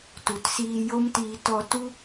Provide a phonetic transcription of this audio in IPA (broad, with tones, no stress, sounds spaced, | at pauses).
t u˨ t s iː˧ j o˦ m t iː˧ t ɔ˧ t u˦